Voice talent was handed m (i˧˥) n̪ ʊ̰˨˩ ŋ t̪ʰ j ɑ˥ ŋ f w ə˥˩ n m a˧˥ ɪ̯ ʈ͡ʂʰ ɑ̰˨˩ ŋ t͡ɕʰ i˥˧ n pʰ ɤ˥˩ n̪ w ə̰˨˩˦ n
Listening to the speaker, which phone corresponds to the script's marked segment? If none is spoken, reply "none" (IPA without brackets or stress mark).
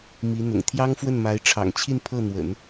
i˧˥